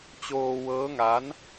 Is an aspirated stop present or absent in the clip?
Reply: absent